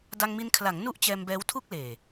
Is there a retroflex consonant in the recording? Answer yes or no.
no